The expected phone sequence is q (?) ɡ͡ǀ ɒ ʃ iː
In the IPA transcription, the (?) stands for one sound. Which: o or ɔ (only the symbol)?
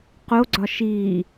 o